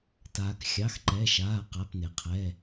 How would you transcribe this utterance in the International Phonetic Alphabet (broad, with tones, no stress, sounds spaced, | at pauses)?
t aː˩ k xʲ ɑ˩˧˩ x ǃ ɛ˩˧˩ ʃ aː˩˧˩ q a˩˧˩ p n e˩ qʰ ɛː˩˧˩